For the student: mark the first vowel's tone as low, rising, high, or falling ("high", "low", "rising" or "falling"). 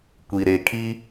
low